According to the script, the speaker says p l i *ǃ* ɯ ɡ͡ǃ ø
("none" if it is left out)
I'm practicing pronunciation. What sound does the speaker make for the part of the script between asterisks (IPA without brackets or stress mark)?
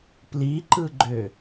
ǃ